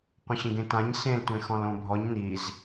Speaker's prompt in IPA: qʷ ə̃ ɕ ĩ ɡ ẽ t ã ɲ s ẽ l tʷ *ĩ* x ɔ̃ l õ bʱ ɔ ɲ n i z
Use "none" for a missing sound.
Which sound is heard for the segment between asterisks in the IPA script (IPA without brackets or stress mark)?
ẽ